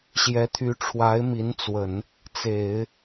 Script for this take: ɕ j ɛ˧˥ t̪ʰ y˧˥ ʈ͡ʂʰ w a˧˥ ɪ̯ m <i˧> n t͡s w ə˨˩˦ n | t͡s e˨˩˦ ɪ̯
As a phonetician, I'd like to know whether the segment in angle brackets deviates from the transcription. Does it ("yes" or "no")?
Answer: yes